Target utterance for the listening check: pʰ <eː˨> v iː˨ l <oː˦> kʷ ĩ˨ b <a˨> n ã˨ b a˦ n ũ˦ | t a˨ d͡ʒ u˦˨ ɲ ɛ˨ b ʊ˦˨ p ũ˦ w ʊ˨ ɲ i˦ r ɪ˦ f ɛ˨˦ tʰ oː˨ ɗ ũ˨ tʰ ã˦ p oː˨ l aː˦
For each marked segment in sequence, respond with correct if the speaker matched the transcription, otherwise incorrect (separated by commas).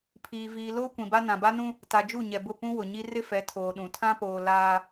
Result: incorrect, correct, incorrect